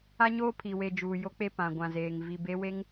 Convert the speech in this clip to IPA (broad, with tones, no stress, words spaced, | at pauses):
a˦ɲoː˦ pʰi˨we˨ d͡ʒuː˨ jo˦k͡pe˦ pã˨ɡʷã˨zeː˨ŋ vi˨be˦we˦ŋ